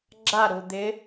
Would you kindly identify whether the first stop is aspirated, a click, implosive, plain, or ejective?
click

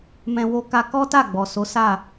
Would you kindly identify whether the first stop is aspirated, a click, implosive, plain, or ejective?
plain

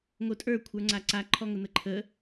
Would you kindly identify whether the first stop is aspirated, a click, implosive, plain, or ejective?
ejective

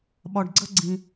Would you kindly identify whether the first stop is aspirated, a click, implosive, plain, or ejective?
implosive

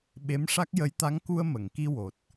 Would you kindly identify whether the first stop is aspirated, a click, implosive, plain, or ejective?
implosive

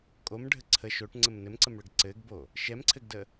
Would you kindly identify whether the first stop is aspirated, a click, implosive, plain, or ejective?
ejective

